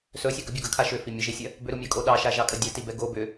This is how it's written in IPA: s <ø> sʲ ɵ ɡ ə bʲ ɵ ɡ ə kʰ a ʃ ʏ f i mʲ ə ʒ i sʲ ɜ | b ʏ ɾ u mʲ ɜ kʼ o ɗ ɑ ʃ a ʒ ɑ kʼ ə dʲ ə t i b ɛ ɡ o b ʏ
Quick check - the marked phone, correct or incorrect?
incorrect: ɵ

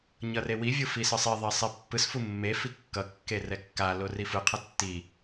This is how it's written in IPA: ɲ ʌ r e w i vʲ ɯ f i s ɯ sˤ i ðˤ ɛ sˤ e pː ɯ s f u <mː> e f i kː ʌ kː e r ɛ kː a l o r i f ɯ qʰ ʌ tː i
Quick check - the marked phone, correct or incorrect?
correct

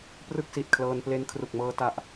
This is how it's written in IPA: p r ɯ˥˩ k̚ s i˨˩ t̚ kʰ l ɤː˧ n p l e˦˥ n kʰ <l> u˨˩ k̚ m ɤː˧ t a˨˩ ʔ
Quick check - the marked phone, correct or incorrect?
incorrect: r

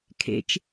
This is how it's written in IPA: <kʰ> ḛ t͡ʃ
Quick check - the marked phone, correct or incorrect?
correct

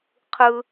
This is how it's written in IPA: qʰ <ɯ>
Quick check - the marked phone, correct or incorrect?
correct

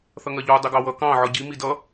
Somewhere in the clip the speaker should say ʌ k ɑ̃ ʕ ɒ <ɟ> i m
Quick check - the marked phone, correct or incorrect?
correct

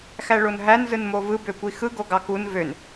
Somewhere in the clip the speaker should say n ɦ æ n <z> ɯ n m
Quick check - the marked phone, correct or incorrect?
correct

